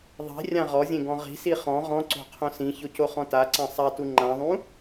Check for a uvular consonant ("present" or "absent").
present